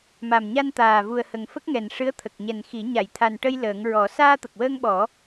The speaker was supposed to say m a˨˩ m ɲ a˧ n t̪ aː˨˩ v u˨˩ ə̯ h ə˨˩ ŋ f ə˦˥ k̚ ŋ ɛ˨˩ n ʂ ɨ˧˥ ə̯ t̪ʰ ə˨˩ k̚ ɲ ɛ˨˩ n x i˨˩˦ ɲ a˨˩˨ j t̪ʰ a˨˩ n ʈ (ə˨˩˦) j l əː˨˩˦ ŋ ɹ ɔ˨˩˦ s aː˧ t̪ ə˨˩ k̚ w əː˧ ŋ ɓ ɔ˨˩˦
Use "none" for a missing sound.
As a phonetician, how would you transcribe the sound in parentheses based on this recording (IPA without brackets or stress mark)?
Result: ə˧